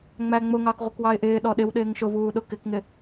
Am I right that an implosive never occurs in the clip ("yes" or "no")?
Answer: no